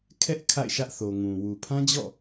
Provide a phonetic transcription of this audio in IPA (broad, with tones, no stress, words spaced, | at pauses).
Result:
kʰɛ˦ʔ kʰa̰˦˨ɪ̯ʃä˦ʔθo˨ ŋũ˨ wu˨pʰã˦d͡ʑɔ̰˦˨